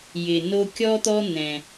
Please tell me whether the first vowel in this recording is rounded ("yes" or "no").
no